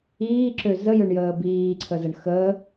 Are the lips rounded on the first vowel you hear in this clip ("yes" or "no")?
no